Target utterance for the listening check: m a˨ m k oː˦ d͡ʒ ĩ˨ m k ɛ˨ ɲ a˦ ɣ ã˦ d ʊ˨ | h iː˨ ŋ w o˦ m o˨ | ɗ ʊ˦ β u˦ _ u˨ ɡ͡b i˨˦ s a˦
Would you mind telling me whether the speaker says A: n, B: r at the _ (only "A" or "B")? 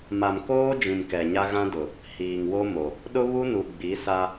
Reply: A